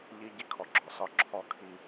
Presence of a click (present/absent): present